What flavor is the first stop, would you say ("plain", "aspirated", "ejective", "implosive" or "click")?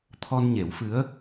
aspirated